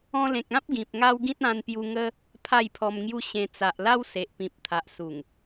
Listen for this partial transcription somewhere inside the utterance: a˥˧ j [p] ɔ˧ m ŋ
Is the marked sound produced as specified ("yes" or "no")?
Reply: no